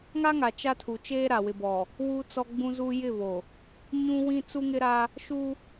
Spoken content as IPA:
ŋ a˦ ŋ a˨ t͡ʃ a˦ tʰ u˨ t͡ʃ eː˦ ɾ a˨ w ɪ˨ b ɔ˨ | w u˦ t͡s ɔ˦ ɡ͡b ũ˦ z u˦ j ɪ˦˨ β o˨ | ɲ ũ˦ w ĩ˦ t͡s u˦ ŋ ɪ˦ ɾ a˦ | ʃ u˦

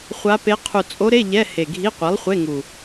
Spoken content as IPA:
χʷ a˧˥ p e˧˥ qʰ u˨˩ t͡sʼ o˧˥ ɾ e˧˥˧ ʎ ɛ˧˥˧ h e˨˩ ɡʱ i˧˥˧ qʷ i˩˥ lˠ χʷ e˧˥˧ ŋ u˨˩

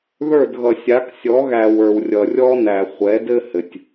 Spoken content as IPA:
ð ə˞˦˨ d ɣ ʌ˨ sʲ a˨˦ k sʲ ɔ˨˦ ɣ æ˨ w ə˞˨ w rʲ ʌ˨ rʲ ɔ˦ n æ˨ χʷ ɛ˨˦ d ɘ˦ h ɘ˨ tʲ

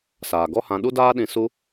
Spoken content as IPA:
s aː˨ ɡ ɔ˦ h ã˧ ɗ u˦ d aː˦ ɗ ĩ˧ s u˧

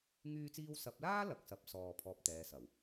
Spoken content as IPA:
ŋ yː˧ t͡s iː˧ w s ɐ˨˥ p̚ l aː˥ l ɐ˨˥ k̚ s ɐ˨˥ p̚ s ɔː˨ pʰ ɔː˧ p̚ t̪ ɛː˨˧ s ɐ˨˩ w

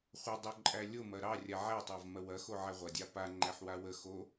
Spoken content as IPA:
χʷ ɐ dˤ o ǃʼ æ lʲ o m ɐ ɾ ɑ rʲ a ʕ æ tˤ ɑ v m ɐ w ɐ x o ʕ æ ʁʷ ɐ dʲ ɑ p a ŋ͡ǃ æ ħ w a w ə x o

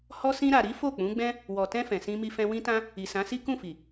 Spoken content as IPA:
h ɔ˧ s ĩ˧ ɾ a˨ ɾ i˨˦ f o˦˨ k͡p ũ˨˦ ɡ͡b ɛ̃˦ | w ɔ˨ t ɛ̃˧ f ɛ̃˨ s ĩ˧ m i˧ f ɛ̃˧ w ĩ˦ t ã˦ | i˨ s ã˨˦ s i˦ k ũ˦˨ f i˨

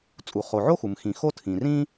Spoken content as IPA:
t͡sʼ u˩ χ o˩ ʕ o˥ x u˩ m x ĩ˩ x o˥ tʰ ĩ˩ r ĩ˥

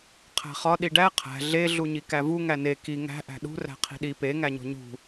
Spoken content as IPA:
qʰ æ̤ χ ɒ ɗ i ɖ æ qʰ æ̤ ɮ e ɮ u ɲ i k æ v u ŋ æ n e k i ŋ æ̤ ʔ æ̤ ɗ ṳ r æ̤ qʰ i̤ ɗ i p e ŋ æ ɲ o̤ ɲ ṳ

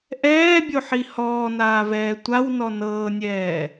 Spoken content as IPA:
ʔ ɛː bʲ o ħ i h ɔː n aː v ɛː tʷ a w n ɔ n ɤː nʲ ɛː

